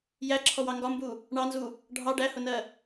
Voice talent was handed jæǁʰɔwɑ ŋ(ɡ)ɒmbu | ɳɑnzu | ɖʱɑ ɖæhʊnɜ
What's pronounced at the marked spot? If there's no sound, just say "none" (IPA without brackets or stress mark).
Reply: ɡ